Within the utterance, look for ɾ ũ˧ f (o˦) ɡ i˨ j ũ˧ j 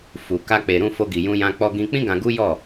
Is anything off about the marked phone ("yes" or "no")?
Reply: yes